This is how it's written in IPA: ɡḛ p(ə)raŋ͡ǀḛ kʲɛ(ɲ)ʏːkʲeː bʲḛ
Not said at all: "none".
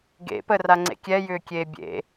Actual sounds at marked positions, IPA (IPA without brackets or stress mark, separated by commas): ə, j